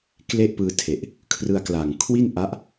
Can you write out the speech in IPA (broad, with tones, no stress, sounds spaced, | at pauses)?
k l e˥˩ ʔ p ɯː˧ tʰ e˨˩ ʔ | kʰ r ɯ˧ a̯ k l a˨˩ ŋ kʰ w i˥˩ n ʔ a˦˥ ʔ